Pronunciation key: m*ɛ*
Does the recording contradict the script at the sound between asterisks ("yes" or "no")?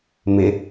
yes